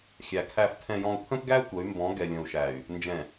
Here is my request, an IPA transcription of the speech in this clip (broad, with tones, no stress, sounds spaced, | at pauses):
xʲ æ˨ kʰ æ˨ f tʰ ɛ̃˨ j ɔ̃˨ u̯ pʰ ə̃˦ p ɡ æ˦ tʷ ə˨˦ y̯ m b ɔ̃˨˦ ɡ ɛ˨ lʲ ə̃˨ u̯ ʃ æ˨ y̯ | n d͡ʒ ɛ̃˨